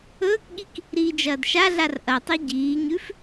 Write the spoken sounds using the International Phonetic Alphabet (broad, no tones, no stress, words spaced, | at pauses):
ɵːkɠik | ɾiːd͡ʒɐːdʃaɮar ʔɐtˤi ɟiːɲʉf